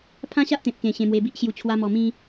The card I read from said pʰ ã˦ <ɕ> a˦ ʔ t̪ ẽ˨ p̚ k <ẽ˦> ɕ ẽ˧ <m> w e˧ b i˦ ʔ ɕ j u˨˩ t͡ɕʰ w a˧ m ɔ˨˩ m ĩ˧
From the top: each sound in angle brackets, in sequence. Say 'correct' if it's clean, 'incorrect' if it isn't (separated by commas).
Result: correct, incorrect, correct